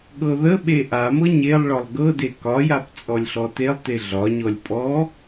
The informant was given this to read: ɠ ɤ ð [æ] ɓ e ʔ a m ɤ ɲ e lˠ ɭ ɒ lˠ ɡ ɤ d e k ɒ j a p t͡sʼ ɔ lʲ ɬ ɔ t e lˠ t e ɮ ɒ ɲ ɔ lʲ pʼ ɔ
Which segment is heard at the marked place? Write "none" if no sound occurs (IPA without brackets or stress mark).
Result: ə